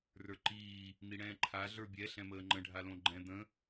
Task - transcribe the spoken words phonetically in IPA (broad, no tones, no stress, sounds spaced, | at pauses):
r ə˞ ǃ iː | n̪ i ɽ ɛ̃ː ǃʰ a ɮ ə˞ bʲ ɛ ɬ ɛ̃ m əː ŋ͡ǃ ə̃ ɖʱ a l õ ɡ͡ǃ ɛ̃ d̪ ə̃